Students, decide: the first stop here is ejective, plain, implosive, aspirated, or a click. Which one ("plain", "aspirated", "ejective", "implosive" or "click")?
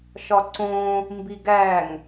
click